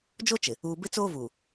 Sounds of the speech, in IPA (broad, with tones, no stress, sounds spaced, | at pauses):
d͡ʒ o˦ t͡ʃ ɪ˨ | uː˨ b ɪ˦ t͡s oː˦ v uː˨